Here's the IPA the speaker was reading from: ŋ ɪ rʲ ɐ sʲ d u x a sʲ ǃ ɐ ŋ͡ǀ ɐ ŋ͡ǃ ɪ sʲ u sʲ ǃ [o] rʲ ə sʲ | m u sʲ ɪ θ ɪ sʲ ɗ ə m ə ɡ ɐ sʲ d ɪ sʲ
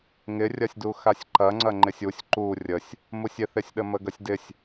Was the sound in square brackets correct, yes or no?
no